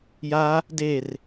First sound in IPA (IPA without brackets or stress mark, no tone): j